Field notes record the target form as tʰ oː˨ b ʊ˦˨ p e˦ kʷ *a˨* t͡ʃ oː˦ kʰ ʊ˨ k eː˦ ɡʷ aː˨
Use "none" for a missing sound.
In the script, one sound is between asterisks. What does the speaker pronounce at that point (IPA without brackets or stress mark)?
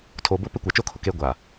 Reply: a˨